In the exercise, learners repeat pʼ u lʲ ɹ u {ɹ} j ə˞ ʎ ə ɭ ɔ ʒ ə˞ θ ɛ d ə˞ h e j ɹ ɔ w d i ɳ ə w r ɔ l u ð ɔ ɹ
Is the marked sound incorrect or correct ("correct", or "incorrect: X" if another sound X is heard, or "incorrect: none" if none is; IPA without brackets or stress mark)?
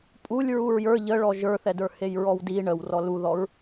correct